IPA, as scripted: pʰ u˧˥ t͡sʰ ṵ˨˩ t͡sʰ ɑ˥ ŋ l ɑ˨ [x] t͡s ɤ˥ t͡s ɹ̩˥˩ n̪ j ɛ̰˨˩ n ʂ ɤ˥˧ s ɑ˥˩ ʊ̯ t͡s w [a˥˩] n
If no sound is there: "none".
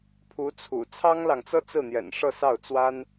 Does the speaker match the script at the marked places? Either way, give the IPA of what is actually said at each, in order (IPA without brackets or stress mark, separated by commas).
ŋ, a˥